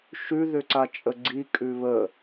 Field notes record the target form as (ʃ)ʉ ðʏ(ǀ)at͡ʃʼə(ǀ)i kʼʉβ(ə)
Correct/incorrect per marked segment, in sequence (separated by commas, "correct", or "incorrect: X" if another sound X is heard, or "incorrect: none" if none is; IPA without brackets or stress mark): correct, correct, incorrect: ɡ͡ǀ, correct